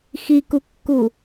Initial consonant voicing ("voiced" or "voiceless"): voiceless